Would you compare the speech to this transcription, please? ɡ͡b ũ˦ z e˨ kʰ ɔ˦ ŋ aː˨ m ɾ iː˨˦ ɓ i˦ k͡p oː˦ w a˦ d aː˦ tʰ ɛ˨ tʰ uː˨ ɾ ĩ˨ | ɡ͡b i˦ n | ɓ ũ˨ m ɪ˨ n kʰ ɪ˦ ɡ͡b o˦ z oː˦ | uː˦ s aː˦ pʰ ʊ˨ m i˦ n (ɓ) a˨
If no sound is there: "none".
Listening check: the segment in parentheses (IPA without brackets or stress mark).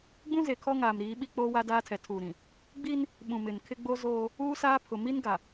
ɡ